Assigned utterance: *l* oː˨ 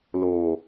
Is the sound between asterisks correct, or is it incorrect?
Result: correct